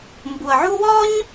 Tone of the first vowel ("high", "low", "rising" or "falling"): low